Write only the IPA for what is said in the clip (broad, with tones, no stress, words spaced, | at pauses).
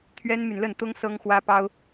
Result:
t̪ʰɥɛ˥nmy˨nlə˥˩nt̪ʊ˥ŋ sɤ˥ŋxwä˥pɑ˥ʊ̯